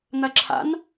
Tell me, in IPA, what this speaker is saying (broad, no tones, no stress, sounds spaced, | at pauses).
n̪ ɐ ǁʰ a̰ n